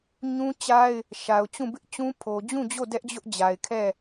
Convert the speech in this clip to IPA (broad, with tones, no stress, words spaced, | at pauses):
ɲũ˦t͡ɕa˦ɪ̯ | ʃa˨ʊ̯t͡ɕũ˦˨bɪ˦ʔt͡ɕũ˦ pʰo˨d͡ʑũ˦˨d͡ʑo˦˨ dɛ˦ʔd͡ʑʊ˦ʔd͡ʑa˨ɪ̯kʰɛ˦˨